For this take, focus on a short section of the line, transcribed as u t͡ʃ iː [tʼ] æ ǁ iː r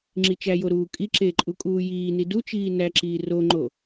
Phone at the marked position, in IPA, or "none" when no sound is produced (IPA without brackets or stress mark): n